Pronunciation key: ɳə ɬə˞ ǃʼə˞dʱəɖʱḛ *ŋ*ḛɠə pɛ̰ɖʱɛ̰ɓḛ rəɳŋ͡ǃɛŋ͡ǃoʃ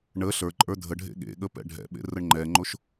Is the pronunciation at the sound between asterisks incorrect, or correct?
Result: incorrect